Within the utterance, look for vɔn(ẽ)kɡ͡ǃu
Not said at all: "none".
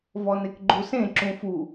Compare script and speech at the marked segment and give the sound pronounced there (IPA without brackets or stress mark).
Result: e